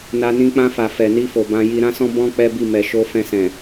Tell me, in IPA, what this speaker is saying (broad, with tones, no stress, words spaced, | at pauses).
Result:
na˧nĩ˧ k͡pã˧fa˨ fɛ˨ni˧fo˨ bã˧ji˧ ɾã˦sɔ̃˦ bɔ̃˦ k͡pɛ˦bi˦˨ mɛ˨ʃo˧ fɛ̃˧sɛ̃˨